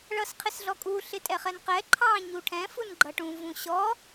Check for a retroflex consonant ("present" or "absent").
present